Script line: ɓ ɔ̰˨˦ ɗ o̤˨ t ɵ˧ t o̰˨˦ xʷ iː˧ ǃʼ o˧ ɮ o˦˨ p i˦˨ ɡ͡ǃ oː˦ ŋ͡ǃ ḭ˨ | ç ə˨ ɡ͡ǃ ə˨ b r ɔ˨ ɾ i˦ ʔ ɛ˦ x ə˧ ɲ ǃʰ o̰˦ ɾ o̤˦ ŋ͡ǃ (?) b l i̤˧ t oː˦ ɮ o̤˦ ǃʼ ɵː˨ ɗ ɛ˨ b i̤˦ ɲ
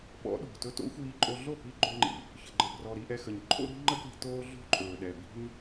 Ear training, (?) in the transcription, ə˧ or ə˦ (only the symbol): ə˦